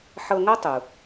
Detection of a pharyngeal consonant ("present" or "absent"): present